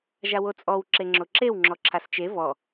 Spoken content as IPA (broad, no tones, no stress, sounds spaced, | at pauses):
ʒ a w o t͡sʼ ɔ w ǁ e ŋ͡ǁ o ǁ e w ŋ͡ǁ ɔ ǁʰ a s t͡ʃ e v ɔ